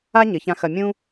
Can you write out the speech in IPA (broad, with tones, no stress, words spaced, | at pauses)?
a˥ ɲɘ˩˧çã˧xɐ˧ mʲũ˥